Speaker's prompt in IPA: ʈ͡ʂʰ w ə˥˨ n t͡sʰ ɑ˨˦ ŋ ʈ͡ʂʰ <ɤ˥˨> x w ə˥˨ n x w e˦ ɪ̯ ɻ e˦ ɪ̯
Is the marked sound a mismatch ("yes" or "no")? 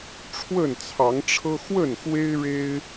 yes